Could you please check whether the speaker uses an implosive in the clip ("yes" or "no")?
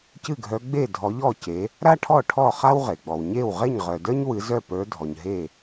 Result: no